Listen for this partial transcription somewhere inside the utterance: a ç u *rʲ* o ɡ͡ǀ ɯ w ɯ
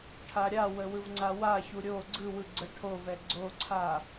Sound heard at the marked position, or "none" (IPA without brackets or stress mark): ɾʲ